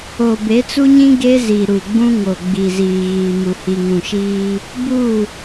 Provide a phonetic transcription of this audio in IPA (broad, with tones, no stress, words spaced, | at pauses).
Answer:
o˨be˨˦t͡su˦ɲĩ˦ ɡe˦zi˨ ɾu˨ɡ͡bũ˦ŋo˨ ɡ͡bi˨ziː˨ɣiː˨mu˨ hi˨ŋũ˨ʃiː˦ | bu˦˨